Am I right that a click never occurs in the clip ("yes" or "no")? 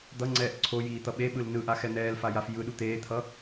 no